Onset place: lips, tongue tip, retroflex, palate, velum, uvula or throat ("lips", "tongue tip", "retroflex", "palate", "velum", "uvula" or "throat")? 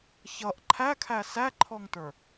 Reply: palate